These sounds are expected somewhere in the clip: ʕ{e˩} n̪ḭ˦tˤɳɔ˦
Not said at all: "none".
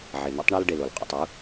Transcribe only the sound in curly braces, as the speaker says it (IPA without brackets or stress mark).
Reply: e˩